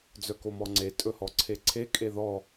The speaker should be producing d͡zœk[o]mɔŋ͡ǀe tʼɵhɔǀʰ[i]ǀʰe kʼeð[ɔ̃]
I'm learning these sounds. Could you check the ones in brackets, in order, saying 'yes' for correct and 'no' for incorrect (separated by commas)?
yes, no, no